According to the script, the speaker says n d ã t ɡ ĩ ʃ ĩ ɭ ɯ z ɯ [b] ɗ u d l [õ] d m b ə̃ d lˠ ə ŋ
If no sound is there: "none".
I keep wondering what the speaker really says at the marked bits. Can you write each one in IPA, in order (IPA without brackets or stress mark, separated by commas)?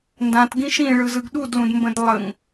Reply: ɡ, ũ